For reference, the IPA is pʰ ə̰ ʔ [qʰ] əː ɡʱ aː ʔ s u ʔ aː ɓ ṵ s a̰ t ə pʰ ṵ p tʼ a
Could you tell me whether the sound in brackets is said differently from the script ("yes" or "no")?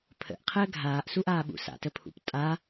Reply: no